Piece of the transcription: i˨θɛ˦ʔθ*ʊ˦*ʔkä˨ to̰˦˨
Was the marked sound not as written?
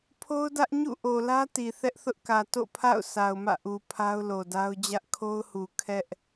no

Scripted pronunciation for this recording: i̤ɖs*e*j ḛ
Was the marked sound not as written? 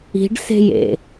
yes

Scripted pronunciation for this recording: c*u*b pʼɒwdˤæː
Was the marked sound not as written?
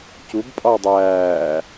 no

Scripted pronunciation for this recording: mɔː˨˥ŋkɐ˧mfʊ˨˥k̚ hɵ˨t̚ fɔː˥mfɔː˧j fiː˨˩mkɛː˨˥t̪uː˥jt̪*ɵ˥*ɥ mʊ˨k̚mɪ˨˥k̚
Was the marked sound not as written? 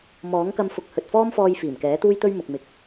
no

